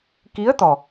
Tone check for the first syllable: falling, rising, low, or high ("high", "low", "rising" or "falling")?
rising